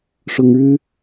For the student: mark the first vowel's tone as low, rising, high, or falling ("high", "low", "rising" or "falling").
high